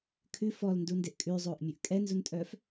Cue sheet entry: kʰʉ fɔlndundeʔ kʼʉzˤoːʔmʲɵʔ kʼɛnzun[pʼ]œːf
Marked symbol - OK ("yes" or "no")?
no